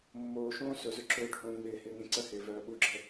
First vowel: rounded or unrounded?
rounded